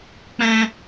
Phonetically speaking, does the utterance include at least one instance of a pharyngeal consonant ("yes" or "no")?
no